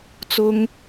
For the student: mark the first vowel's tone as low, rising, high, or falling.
high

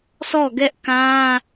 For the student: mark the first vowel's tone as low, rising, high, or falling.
falling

